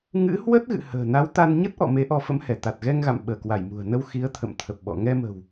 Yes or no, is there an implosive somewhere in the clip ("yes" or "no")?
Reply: yes